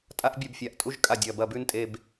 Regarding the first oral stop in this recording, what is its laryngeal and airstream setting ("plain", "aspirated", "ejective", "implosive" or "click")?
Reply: ejective